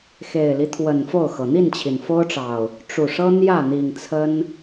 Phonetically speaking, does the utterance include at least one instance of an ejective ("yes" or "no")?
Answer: no